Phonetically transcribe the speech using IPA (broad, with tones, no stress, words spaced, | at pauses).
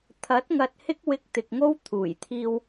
t̪ʰɐ˨˥t̚ŋɐ˨t̚ hɪ˥k̚wɪ˧k̚t̪ɪ˨k̚ŋo˥w t̪ʰuː˨˩jt̪ʰiː˧w